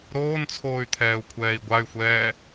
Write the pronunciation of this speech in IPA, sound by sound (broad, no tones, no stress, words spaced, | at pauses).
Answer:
ɾoːnt͡sʰoːy̯ t̪ʰɛːu̯kʷʰɛːi̯ɡʷay̯xʷɛː